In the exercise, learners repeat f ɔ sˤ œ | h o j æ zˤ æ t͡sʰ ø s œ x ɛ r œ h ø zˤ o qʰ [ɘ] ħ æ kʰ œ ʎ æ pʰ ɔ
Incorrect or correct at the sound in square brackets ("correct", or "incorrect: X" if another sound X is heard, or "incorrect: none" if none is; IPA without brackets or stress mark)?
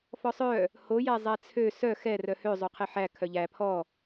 incorrect: e